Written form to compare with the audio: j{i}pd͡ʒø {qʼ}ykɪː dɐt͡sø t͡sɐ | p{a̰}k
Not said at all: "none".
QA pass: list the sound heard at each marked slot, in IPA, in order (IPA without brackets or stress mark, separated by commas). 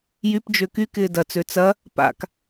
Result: y, k, a̰